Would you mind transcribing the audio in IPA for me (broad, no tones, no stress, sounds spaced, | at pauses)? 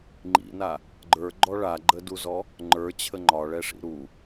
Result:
ŋ͡ǃ ḭ n a | ɡ͡ǃ ə˞ ɡ͡ǃ ɔ ɭ a ɡ͡ǃ ə d u z ɔ | ŋ͡ǃ ə˞ t͡ɕʰ ə ŋ͡ǃ ɒ ɭ ɛ ʂ ḭ ɾ u